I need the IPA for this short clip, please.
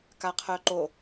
k a qʰ œ ǃ o

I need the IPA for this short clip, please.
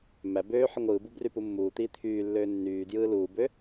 m æ b øː ħ ɯ ŋʷ ɯː b u b r y p u mː uː t̪ iː t̪ʰ yː lː øː nː yː d j ɯː l uː b ø

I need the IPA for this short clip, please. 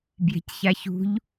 b j e̤ c ç a ç ṳ ʎ

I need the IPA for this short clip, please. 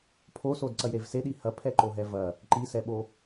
pʰ o s o d ǀ ɐ j ɾ e v s e ɗ i h ɐ pʰ ɛ ǃ o ɦ ɛ v ɐ | ǃ i s ɛ ɓ o

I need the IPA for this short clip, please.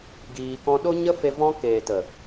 ɡ iː˧ k ɔ̃˦ ɗ o˦ ɲ ə˦ f e˧ v ɔ̃˦ k eː˨ t ə˨

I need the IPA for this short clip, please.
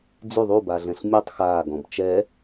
d͡z y ðˤ u b a ɮ ɛ̃ ɬ mʲ u tˤ x aː ɡ ɔ̃ b t͡ʃ ɛ

